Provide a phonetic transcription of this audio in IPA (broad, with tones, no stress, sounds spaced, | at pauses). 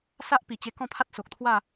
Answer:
s a˦ ʔ p i˨˩ t͡ɕ e˧ k ɔ̃˥˧ pʰ a˦ t̚ s o˨ k̚ t̪ʰ w a˥˧